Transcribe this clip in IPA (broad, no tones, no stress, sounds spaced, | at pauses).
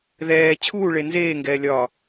ð ɛː t͡ɕʰ uː ɭ e n z eː ŋ ɡ ɛː lʲ ɒ